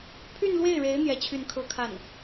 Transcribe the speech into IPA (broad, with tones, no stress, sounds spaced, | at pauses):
pʰ y˥˧ n l w e˥˩ ɪ̯ ɻ e˧˥ ɪ̯ n̪ j ɛ˥˧ t͡ɕʰ y˥˩ n kʰ ɤ˥ kʰ a˥˩ n